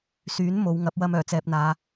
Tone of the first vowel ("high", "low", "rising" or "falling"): rising